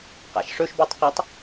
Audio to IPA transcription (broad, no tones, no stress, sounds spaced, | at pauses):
q a̰ ʃ ʂ ɵ ʃ b ʉ tˤ q ɵ tˤ